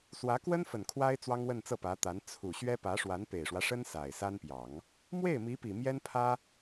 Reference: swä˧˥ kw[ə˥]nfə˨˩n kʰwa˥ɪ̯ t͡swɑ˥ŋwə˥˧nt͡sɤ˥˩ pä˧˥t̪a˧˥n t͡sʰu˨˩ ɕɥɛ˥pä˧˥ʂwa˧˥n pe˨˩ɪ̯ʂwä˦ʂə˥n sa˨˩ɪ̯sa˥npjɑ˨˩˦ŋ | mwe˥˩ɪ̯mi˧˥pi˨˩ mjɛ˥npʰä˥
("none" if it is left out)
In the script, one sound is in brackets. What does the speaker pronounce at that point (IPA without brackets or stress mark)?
ə˥